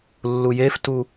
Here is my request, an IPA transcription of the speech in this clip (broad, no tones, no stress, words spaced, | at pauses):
lːujeftu